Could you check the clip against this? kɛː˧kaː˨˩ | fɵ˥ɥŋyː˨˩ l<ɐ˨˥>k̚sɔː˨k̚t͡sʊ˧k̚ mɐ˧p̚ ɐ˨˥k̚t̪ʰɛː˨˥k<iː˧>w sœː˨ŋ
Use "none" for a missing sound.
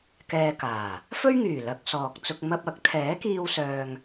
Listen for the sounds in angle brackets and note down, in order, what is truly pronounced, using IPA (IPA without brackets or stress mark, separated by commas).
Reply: ɐ˨˥, iː˧